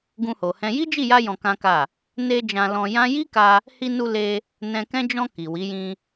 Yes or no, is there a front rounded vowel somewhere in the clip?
no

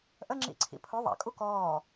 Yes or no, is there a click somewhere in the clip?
yes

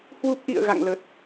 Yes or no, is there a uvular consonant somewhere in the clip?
no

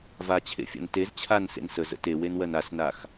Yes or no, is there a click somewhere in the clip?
no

